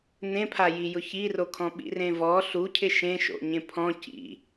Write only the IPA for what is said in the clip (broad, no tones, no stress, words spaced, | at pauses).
n̪ẽpʰajijʊ çirokʰɔ̃ ɓḭrẽvɔ ɬu cʰɪʃẽʃo̰ ɲẽpʰɔ̃ cḭ